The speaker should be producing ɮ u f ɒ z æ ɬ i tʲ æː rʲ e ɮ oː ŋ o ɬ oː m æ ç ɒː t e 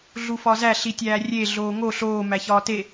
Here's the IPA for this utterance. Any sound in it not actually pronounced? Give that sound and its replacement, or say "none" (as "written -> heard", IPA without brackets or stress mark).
none